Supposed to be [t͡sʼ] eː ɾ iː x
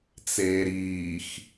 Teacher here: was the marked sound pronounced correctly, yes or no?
no